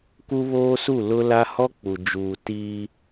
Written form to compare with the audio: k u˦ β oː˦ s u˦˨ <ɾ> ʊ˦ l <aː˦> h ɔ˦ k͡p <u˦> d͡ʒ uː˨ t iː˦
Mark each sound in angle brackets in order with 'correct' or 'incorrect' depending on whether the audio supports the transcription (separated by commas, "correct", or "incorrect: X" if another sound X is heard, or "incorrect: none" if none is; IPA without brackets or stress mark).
incorrect: l, incorrect: a˦, incorrect: u˨